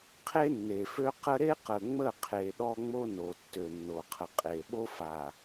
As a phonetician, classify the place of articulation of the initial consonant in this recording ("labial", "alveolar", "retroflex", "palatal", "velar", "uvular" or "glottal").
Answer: uvular